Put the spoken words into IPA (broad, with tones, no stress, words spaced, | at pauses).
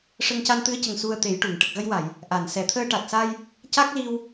ʂə˧ŋca˧nt̪ɨ˧˥ə̯cə˨˩ŋ su˧ə̯t̪e˨˩˦jʈu˨˩˨ŋ ʈə˨˩k̚ɣə˧jwa˨˩˨j | ʔa˨˩˨n sɛ˨˩˨t̪ʰəː˧ʈa˨˩t̚sa˧j | ca˦˥k̚li˧w